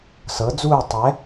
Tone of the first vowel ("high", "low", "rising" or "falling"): rising